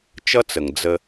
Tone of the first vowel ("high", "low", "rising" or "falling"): high